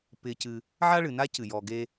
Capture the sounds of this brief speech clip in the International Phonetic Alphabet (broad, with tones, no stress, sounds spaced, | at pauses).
p ɪː˧ c ɨ˧ | ʕ a˦ ɭ ɨ˨ n a˦ c ɨ˨ j ɔː˧ ɡ eː˦